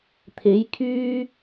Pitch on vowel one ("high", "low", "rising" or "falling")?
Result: rising